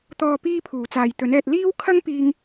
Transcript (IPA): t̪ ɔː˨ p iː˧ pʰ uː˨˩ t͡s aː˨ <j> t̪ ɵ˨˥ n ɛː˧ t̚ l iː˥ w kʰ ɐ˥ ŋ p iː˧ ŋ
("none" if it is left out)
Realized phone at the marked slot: j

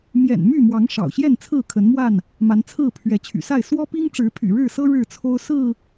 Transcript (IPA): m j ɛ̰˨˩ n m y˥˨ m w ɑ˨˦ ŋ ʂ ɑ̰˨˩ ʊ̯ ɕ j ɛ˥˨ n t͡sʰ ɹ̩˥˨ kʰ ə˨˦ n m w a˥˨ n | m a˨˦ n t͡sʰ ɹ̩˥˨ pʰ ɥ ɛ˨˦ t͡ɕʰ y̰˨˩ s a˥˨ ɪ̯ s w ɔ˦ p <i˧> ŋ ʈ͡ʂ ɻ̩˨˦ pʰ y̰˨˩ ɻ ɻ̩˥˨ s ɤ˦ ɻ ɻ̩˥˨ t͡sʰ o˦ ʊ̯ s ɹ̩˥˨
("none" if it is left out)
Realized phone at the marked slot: i˦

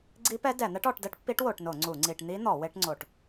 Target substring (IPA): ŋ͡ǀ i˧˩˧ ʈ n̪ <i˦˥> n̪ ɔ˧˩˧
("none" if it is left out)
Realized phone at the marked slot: i˦˥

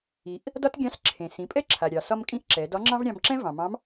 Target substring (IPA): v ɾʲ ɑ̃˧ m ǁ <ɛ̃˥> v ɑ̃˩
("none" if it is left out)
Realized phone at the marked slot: ɛ̃˥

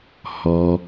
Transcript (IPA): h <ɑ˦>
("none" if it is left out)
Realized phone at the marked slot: ɔ˦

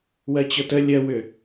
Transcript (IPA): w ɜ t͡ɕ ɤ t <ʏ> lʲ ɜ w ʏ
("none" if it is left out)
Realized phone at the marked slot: ə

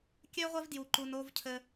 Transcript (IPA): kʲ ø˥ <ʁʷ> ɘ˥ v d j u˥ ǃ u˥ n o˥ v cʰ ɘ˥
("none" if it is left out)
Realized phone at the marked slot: ʁʷ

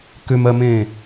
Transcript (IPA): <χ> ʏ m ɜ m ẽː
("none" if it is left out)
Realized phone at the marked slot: k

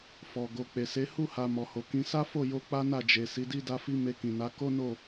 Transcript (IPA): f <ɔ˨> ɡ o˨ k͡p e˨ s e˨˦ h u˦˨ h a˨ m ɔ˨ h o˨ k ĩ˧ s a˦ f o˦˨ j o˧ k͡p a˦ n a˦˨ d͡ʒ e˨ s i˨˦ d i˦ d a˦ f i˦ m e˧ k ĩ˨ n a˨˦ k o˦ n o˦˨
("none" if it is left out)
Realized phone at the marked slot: ɔ˨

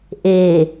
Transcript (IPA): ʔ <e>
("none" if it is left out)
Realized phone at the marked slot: e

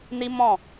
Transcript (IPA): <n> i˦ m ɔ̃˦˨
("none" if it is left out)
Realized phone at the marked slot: n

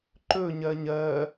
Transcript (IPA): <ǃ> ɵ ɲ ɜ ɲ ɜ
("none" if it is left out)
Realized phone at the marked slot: ǃ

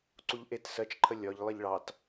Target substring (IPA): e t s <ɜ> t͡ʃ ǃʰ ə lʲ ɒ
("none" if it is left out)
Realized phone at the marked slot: ɜ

